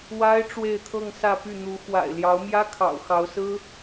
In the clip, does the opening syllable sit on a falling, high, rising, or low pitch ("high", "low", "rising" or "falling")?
high